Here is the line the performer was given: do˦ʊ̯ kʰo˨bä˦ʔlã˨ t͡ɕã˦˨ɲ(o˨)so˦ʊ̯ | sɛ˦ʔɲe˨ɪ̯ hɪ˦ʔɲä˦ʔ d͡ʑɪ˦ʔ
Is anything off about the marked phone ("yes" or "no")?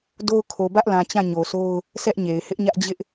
no